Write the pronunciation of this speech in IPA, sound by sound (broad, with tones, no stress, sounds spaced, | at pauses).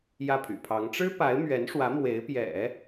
j ä˥˩ pʰ y̰˨˩ pʰ ɑ˧˥ ŋ ʈ͡ʂ ɻ̩˥ p a˧˥ ɪ̯ m ɥ ɛ˧˥ n ʂ w ä˧˥ m w e˧˥ ɪ̯ p j ɛ̰˨˩˦